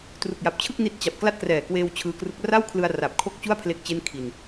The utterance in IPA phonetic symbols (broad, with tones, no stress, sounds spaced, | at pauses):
t r u˨˩ k̚ j a˨˩ p̚ t͡ɕʰ ɯ˥˩ k̚ n i˥˩ t̚ t͡ɕ a˨˩ p̚ k l a˥˩ t̚ k r ɛː˨˩ k w eː˧ w t͡ɕʰ ɯː˧ k r u˦˥ k̚ r a˥˩ w kʰ l ɯ˧ a̯ r a˨˩ p̚ kʰ o˥˩ k̚ t͡ɕ u˥˩ a̯ pʰ l e˦˥ k̚ t͡ɕ e˥˩ n kʰ i˧ n